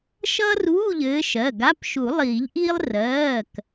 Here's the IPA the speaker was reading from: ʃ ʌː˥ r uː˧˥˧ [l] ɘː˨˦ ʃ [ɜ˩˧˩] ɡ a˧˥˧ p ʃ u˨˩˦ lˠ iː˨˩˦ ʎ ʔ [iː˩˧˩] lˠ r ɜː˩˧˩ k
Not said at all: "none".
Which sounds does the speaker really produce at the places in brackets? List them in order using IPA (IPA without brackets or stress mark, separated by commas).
ʎ, ɜ˩˧˩, iː˥